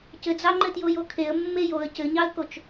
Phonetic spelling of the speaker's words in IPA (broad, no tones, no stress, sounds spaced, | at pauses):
c ɘ d͡z ɑ ŋ͡ǃ ɘ t j o j o kʰ e ə̯ mː e j o ə̯ c ɘ ɲ ɑ ə̯ k o t͡ʃ